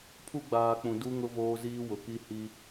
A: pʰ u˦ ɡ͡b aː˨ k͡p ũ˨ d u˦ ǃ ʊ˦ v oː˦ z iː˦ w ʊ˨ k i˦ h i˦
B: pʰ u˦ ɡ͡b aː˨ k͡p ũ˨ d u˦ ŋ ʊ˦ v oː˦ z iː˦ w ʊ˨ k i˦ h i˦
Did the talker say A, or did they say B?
B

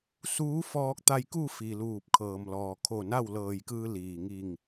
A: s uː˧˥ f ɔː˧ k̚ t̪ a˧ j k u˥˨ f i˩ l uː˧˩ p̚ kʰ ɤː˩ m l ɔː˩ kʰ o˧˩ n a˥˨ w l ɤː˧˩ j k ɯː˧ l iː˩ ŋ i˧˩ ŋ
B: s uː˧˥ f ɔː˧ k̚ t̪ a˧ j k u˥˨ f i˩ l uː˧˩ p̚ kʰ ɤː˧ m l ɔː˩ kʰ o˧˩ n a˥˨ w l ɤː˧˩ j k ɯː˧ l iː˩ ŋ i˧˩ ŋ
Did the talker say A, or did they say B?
A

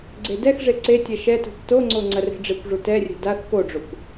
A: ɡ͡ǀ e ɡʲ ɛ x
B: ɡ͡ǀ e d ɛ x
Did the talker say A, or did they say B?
B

